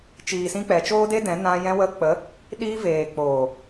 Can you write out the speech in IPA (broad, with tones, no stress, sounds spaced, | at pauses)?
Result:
t͡ʃ iː˨ s ĩ˧ k͡p ɛ˨ t͡ʃ oː˦ d e˦ d ɛ̃˨˦ n ã˧ j ɛ̃˧ w ə˧ k͡p ə˨˦ | ɗ iː˧ v eː˨ k͡p oː˨